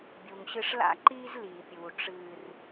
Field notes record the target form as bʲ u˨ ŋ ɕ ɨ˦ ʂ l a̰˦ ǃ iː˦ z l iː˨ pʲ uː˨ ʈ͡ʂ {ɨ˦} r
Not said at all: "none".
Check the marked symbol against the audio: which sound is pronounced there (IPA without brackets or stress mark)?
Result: ɨː˦